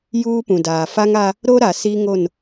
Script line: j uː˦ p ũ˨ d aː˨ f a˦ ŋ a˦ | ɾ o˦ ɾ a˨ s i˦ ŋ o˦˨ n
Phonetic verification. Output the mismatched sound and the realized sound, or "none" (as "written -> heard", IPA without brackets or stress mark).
none